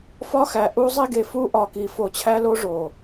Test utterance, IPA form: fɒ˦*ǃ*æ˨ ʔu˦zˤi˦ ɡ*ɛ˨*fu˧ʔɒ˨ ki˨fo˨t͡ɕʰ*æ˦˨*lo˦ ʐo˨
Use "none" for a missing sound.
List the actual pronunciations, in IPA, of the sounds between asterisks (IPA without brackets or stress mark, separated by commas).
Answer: x, e˨, æ˦